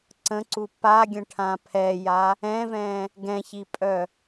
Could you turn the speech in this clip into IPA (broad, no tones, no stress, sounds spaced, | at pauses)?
ǀ ə̃ ǀ u p a ɡʲ ə̃ ʈʰ ã pʰ ɛ j a | ɛ̃ v ɛ̃ | ɡ ɛ̃ ç i pʼ œ